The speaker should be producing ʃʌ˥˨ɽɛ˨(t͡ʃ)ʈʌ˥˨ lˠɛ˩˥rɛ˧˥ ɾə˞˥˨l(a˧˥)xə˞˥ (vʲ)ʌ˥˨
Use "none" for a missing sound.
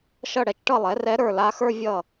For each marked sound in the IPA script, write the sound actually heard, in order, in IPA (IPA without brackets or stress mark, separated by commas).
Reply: t͡ʃ, a˧˥, vʲ